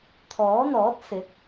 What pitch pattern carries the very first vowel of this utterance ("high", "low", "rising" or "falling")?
rising